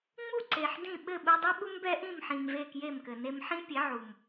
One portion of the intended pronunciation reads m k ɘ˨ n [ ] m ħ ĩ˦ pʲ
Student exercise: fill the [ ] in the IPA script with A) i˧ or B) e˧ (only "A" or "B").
B